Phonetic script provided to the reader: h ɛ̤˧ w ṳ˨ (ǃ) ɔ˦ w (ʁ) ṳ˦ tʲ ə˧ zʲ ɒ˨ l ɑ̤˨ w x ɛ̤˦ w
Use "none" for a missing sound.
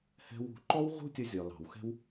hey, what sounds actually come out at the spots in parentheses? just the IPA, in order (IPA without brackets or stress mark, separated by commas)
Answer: ǃ, ʁ